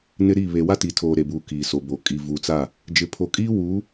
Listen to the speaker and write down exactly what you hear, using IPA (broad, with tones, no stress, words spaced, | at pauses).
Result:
nɪ˦ɾi˦˨ βe˨wa˦ti˨tʰoː˨ ɾe˨buː˨ kiː˨so˨bo˨ kʼi˨ vu˨t͡sa˦˨ | d͡ʒɪ˨pʰo˨kʼiː˦ wuː˨˦